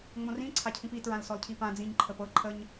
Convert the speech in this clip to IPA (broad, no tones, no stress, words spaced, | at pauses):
ŋ͡mõrĩ ǀʰacʰĩpi tɹãlsɔlcʰipã d͡zĩɲ ǃʰəpɤ ǃʰəɲ